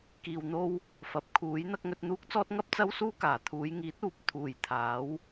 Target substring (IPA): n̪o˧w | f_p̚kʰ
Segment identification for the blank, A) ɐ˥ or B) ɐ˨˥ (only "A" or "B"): B